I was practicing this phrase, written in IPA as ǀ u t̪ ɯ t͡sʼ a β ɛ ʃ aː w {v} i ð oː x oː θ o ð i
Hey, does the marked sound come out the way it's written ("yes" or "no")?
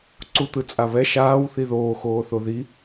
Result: no